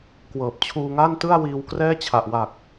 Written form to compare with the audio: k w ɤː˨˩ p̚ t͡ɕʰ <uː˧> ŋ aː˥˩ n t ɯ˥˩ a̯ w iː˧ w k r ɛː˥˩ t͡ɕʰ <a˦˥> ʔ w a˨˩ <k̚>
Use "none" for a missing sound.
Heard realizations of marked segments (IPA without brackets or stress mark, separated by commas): uː˧, a˨˩, k̚